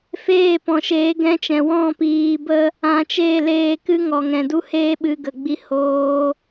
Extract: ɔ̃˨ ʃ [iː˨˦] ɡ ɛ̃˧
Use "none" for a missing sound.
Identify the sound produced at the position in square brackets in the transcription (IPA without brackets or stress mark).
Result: eː˨˦